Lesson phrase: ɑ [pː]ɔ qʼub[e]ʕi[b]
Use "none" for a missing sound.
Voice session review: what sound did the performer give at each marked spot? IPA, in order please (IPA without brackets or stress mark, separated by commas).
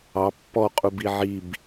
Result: pː, i, b